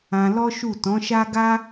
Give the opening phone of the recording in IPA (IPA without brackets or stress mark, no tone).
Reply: ã